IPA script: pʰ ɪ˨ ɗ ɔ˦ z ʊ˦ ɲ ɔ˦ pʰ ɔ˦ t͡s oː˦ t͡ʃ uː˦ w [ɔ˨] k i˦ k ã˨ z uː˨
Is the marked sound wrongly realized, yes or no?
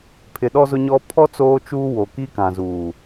yes